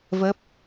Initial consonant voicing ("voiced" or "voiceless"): voiced